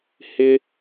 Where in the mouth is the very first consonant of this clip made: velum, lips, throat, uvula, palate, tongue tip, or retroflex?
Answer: throat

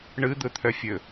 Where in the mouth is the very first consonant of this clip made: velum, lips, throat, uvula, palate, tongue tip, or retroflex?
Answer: retroflex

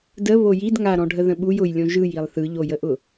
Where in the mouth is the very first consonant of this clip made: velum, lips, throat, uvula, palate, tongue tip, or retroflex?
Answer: tongue tip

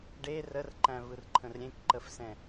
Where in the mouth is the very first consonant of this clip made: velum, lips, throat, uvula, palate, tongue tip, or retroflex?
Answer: retroflex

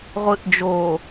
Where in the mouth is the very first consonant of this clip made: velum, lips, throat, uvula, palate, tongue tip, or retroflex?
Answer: uvula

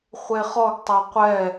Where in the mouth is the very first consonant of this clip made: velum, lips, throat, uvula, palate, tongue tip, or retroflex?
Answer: uvula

